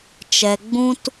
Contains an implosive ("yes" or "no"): no